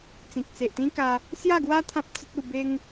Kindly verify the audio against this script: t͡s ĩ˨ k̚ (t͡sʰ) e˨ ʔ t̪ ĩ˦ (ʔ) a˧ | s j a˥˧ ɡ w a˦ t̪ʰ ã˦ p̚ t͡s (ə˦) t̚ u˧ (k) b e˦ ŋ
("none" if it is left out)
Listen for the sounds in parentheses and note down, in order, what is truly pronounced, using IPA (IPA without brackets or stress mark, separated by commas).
t͡s, k, ə˦, none